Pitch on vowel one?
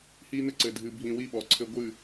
high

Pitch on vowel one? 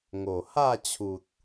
low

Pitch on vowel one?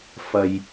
low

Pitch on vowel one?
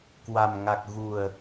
low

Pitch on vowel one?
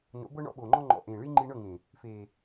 rising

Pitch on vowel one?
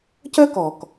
high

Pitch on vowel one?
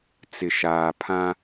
low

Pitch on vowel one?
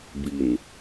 low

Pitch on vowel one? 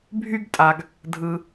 high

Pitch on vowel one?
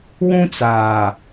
high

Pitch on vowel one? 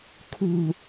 low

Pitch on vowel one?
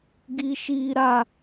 high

